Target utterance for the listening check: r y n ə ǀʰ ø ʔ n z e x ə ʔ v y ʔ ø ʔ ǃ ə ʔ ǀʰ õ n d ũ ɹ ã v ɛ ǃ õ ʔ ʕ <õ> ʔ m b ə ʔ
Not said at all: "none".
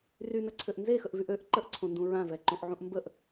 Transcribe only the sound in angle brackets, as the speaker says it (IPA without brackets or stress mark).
ũ